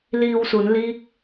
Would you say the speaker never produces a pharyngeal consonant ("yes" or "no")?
yes